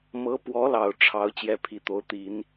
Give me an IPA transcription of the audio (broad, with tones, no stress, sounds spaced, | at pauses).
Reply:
m ɤ˧˥ p w ɔ˧˥ l ɑ˨˩ ʊ̯ ʈ͡ʂʰ ɑ˧˥ ʊ̯ t͡ɕ j ɛ˥ pʰ i˧˥ t̪ o˧˥ ʊ̯ t̪ i˨˩˦ n